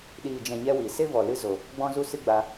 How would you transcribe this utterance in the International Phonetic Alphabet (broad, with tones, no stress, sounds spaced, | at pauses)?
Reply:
ɗ iː˨ d͡ʒ ɛ̃˨ ɲ ɛ˦ w i˨ s e˦ v ɔ˨ l ɨ˦ z o˨ | ɡ͡b ɔ̃˦ z u˦ s ɨ˦ ɡ͡b a˧